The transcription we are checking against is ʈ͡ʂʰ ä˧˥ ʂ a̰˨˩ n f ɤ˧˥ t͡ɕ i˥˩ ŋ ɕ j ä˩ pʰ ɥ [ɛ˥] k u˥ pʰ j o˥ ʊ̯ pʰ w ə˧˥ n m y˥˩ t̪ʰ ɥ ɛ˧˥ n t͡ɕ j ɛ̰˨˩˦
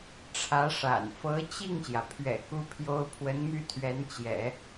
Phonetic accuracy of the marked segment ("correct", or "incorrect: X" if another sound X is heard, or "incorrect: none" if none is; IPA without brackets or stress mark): incorrect: ɛ̰˨˩